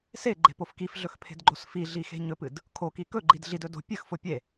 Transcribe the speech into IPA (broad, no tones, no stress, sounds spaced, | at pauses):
s e ɡ͡ǃ e̤ p o f k i f ɮ ɵ x pʰ e̤ d ɡ͡ǃ o s f i ɮ i x e̤ ɲ ɵ p ɨ d | kʰ o k i k ɵ ɡ͡ǃ i d ɮ i d ɵ d o̤ pʲ ɨ x f o pʲ e